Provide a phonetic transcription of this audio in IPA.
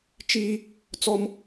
t͡ʃi˦ | t͡sɔ˦m

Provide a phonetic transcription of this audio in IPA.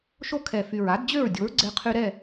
ʃo˦kʰɛ˨˩ fy˨˩ɹa˨˥dd͡ʑø˥˨ɹdʲo˨˥ɹ ɡ͡ǀɛ˦qʰy˦ ɾɛ˥˨

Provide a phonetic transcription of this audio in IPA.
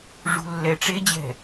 ʐṳlːɛʈ͡ʂed͡ʑɛ̤

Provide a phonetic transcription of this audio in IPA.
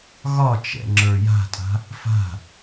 ɣɒt͡ʃɛ̰ ŋ͡ǁə˞ja̤tʼa̤ | fa̤

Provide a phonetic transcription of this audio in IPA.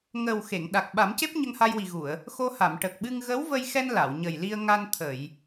ŋə˨˩w xe˨˩˨ŋ ɗa˨˩k̚ɓa˨˩˦mce˦˥p̚ ɲə˧ŋha˧jwi˨˩ɣu˨˩˨ə̯ | xo˧ha˨˩˨m ʈə˨˩k̚ɓɨ˧ŋ ɣə˧˥wvə˧jxɛ˧n la˨˩˨wɲə˨˩jli˧ə̯ŋa˧n t̪ʰə˨˩˨j

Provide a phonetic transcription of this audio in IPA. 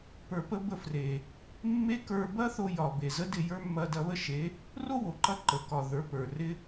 pə˞˧pə˦ bə˧fre˨ | mːe˦kə˞˧ bɐ˦θo˧ jɒ˨ be˨ zə˦dɪ˦˨jə˞˦ mːɐ˧dɐ˧βə˦ʃe˨˦ | ro˦wo˨ǃɐ˧ ǃə˨kɒ˨ ðə˞˨˦pə˞˨rɪ˦

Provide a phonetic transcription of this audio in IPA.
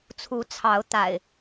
t͡sʰu˨˦t͡sʰɑ˨˦ʊ̯ t̪a̰˨˩ɪ̯

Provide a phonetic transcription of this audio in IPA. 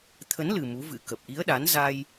t̪ʰə˨˦nlɨ˨˩ mu˨˦vɨ̰˧˥kə˨˩p̚ ʔi˨˦ə̯ɗa˨˦n za˧j

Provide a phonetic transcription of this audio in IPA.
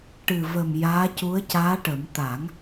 ʈɨ˨˩və˨˩m jaː˧˥cu˧˥ə̯caː˧˥ʈə˨˩˦m t̪a˨˩˦ŋ

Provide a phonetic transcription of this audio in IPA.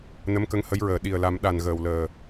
nə˧˥mkə˧ŋhə˧˥jɹəː˨˩˨ ɗi˨˩ə̯la˨˩˦mɗa˨˩n ɣəː˨˩wləː˨˩

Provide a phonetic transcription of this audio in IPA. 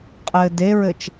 qʼɘːdeɹɘt͡ʃ

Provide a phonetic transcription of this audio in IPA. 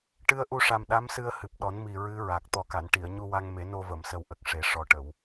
ʈɨ˧ə̯ʔu˧ʂa˨˩m ɗa˧˥msɨ˧ə̯ hɨ˨˩p̚ɗɔ˨˩˦nmi˨˩ ɹɨ˧˥ ɹa˨˩k̚ t̪ɔ˨˩ka˨˩˨nʈi˨˩˨ə̯ ɲu˧wa˧ŋme˨˩˦no˧ və˨˩˨msə˨˩wʔə˨˩k̚ ʂe˨˩˦ʂɔ˨˩ʈə˨˩˨w

